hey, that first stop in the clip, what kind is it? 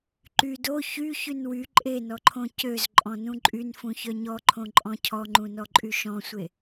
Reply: click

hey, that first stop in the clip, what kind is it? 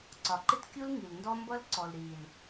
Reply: click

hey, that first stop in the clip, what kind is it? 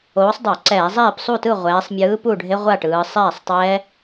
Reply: plain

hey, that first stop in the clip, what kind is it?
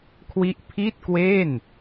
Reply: aspirated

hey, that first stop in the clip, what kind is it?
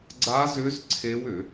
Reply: click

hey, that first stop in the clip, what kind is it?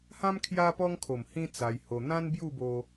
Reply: aspirated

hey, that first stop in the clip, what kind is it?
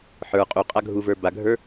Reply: ejective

